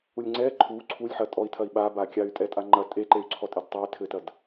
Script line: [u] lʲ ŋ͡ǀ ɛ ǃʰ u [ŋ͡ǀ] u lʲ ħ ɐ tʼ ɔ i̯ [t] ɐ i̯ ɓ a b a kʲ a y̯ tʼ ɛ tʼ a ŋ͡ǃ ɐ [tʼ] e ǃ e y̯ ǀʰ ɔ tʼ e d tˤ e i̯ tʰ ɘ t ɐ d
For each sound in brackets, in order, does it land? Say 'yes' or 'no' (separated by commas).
yes, no, no, yes